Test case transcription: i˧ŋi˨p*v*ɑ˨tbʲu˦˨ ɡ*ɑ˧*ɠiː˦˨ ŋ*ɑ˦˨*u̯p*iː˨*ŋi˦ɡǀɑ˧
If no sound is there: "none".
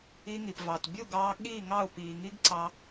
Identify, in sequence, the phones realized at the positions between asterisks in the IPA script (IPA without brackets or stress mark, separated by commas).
v, ɑː˧, ɑ˦˨, iː˨